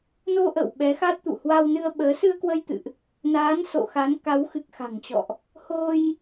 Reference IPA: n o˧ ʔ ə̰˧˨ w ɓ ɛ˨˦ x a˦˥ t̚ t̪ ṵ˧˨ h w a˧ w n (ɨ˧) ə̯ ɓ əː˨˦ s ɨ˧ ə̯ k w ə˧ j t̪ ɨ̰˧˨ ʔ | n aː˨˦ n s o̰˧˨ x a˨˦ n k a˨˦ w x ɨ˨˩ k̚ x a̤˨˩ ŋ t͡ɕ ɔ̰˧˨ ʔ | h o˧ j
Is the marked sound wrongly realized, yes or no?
no